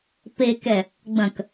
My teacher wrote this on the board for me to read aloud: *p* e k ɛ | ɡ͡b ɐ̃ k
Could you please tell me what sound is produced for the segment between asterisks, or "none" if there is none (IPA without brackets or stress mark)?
p